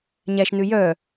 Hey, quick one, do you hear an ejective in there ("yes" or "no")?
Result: no